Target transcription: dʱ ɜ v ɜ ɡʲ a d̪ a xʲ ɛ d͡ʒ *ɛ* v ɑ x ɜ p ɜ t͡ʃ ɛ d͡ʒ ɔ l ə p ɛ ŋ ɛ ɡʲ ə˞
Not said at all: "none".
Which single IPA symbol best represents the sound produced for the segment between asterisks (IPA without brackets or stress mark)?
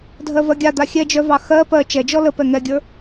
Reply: œ